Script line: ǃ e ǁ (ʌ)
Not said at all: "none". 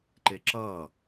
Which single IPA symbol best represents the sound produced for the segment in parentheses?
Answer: ʌ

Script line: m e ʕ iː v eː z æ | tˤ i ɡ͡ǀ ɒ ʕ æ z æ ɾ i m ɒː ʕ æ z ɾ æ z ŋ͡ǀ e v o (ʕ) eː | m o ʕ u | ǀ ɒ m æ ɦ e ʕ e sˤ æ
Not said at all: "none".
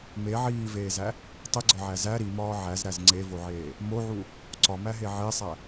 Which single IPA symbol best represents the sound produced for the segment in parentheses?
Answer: ʕ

